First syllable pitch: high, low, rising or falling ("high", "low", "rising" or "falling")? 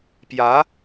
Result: rising